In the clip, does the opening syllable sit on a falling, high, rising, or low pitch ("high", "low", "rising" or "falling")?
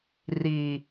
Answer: low